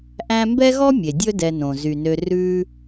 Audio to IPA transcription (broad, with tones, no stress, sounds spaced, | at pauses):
ʔ æ̃˦ m b ɛ˥ ɣ ɔ˥ mʲ e˩ dʲ ɵ˦ d ɛ˨ n õ˩ z y˩ n ø˨ r ʉ˦